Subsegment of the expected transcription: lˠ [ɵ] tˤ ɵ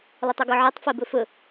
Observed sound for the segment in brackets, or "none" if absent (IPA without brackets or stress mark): ɵ